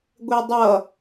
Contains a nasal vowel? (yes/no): no